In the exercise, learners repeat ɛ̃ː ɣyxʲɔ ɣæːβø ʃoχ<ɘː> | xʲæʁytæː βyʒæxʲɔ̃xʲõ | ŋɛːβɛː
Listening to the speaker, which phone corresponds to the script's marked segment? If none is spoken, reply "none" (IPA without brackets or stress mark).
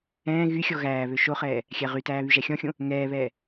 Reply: ɛː